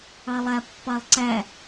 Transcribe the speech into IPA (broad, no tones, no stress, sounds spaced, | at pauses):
ɑ lˠ æ pː ɑ lˠ ǀ æ